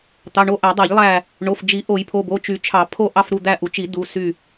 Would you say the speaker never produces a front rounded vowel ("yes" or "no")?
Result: no